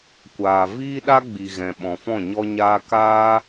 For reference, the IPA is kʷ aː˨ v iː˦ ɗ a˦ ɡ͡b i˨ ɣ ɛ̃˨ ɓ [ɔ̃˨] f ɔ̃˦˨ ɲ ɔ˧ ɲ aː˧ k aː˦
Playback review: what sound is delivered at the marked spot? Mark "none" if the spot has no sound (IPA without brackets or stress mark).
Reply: ɔ̃˨